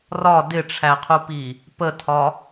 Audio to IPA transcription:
r ɒ d ɪ ʈ͡ʂʰ æ qʰ u p i | p ə tʰ ɒ

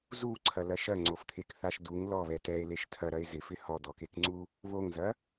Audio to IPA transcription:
z u ǀʰ ɐ l ɐ ʃ ɐ ŋ͡ǀ o f t̪ʰ e k θ a ʃ d u ŋ l ɔ β ɛ t ɛ e̯ l e ʃ tʰ ɐ ɾ ɐ e̯ z ɪ f ɪ h ɔ d̪ ɔ k e k ŋ͡ǀ u | β o ŋ z ɐ

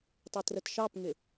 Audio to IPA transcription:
tˤ ʊ t r ə t ʃ ɑ p ŋ ɪ

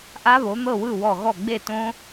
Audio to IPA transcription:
ʔ a˦˥ β o˩˥ n̪ ɤ˥˩ w ɯ˥˩ w ɔ˧˩ ɣ ɔ˥˩ ɡ͡b e˥˩ t õ˦˥

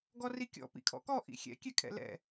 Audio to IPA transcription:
ɡ ɔ r i kʲ ɔ̰ p ḭ kʰ ɔ̰ k ɔ ʔ ḭ xʲ ɛ̰ kʲ ɛ kʰ ɛ̰ l ɛ̰

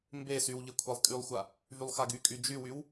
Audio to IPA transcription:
m b e s y w ʎ e kʷʰ a lˠ kʼ y lˠ xʷ a | v y lˠ x a ɡ y kʼ y d͡ʒ y w y w

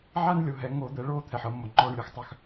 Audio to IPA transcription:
ʕ aː˦ n lʲ o˩˧ ɦ ɛ˩˧ ŋ oː˧˩˧ d̪ ɛ˩˧ ɭ oː˦˨ t̪ʰ ɛ˩ ħ ɤ˧˩˧ mː o˩ ŋ͡ǃ ɔː˦˨ ɳ lʲ o˦ x tˤ œ˦˨ x

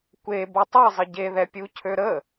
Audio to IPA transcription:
kʷ e b o tˤ e zˤ ə ɟ e ð ɛ pʲ u cʰ ø ɾ ə

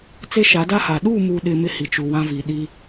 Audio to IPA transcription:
t͡s e˦ ʃ a˨˦ d a˦ h a˨ ɗ u˦˨ m u˨ ɗ ɪ˨ m ɪ˦ h i˨ t͡ʃ u˨ w ã˦ v i˨ ɗ i˦

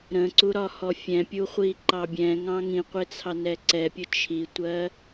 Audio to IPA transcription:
ɾ ə̃ ǀ u ɾ ɒ h ɔ fʲ ɛ̃ pʲ u χʷ i ǃ ɑ bʲ ɛ̃ ŋ ɑ̃ ŋ ĩ qʷ ɪ t͡sʰ ɑ n ɛ ǀ ɛ pʲ ʊ t͡ʃʰ i tʷ ɜ

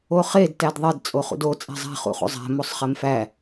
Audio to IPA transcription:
o χ e d t æ d ðˤ e d t͡sʼ o χ ṵ d o t͡sʼ æ̤ zˤ æ̤ χ ṵ χ ṵ zˤ æ̤ m o sˤ χ e m f æ

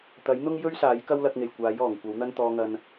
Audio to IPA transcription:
t̪ ɐ˨˥ j n̪ ʊ˥ ŋ j ɵ˥ ɥ s aː˨˥ j k ɐ˥ w l ɐ˧ k̚ ŋ e˨˩ j kʷ aː˨˥ j ɔː˨˩ ŋ kʷ ɐ˨˥ w n̪ ɐ˥ n t̪ ɔː˧ ŋ ɐ˧ n

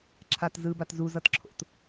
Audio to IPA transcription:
ǁʰ a t z ɯ b a t z u z ʌ t ǁʰ o̰ t

